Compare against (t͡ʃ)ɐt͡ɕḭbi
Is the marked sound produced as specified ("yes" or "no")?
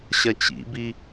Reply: no